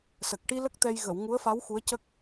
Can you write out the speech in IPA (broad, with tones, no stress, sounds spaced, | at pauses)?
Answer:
s ə˨˩ k̚ ʈ i˧ l ə˦˥ k̚ t̪ ɛ˧ j ɣ ə˨˩˨ w ŋ u˧˥ ə̯ f a˧˥ w x u˧˥ ə̯ c ə˦˥ k̚